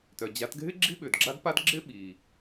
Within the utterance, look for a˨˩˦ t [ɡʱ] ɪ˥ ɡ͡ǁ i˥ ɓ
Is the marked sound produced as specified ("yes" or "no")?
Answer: yes